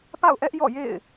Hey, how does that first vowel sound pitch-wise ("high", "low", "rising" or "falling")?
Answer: falling